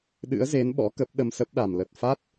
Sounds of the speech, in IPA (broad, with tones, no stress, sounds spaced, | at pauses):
ɗ ɨ̰˧˥ ə̯ z e˨˦ n ɓ ɔ̰˧˥ k ə˦˥ p̚ ɗ ə˧ m s ə˦˥ p̚ ɗ a˨˩ m l ə˨˩ t̚ f a˦˥ t̚